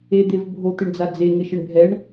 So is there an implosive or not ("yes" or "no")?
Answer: no